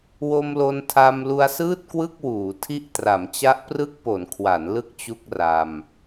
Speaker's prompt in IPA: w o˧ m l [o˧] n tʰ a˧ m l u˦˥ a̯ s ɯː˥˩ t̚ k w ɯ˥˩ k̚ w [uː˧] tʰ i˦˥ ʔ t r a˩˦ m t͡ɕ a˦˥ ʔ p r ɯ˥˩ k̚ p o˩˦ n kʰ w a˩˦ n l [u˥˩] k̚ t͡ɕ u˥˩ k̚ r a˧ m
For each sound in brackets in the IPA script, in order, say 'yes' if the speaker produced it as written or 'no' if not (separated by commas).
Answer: yes, no, no